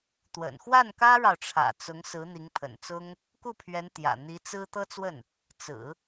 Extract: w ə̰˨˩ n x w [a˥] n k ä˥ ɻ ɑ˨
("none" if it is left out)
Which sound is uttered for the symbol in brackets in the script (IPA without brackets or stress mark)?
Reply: a˥˩